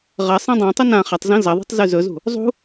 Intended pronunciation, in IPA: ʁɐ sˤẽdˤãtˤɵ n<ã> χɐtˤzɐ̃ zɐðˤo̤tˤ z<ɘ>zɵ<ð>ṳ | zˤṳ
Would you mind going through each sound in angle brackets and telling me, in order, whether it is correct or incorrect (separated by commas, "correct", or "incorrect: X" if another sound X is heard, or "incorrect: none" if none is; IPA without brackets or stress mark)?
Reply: correct, incorrect: ʉ, incorrect: z